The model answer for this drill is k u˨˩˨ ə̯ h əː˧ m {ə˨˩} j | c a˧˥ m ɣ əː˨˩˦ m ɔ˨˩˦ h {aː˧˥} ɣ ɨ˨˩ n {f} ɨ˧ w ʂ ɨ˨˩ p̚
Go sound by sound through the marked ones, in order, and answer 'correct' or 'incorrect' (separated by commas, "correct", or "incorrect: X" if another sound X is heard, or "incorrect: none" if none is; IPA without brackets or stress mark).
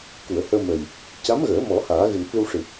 correct, incorrect: aː˨˩˦, correct